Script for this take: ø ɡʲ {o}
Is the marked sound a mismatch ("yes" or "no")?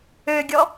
yes